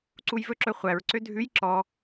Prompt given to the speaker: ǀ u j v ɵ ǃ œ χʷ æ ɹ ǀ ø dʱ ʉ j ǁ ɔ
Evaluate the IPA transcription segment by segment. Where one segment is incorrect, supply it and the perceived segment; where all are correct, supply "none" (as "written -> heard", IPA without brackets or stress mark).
ǃ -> ǁ